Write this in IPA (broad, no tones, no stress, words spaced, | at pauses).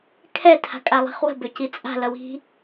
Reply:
kʰɛ tʰa̤kʼalˠi̤χwə̤ bʏcit͡sʼa̤ lʌwi̤